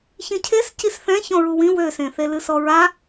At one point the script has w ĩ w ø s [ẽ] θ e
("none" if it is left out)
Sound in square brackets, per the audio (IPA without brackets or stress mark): ẽ